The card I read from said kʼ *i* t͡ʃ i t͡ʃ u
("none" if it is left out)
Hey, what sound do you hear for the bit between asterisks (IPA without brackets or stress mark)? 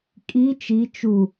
i